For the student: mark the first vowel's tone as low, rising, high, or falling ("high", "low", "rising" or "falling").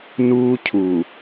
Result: high